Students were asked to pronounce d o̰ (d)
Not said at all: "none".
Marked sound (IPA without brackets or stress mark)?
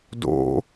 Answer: none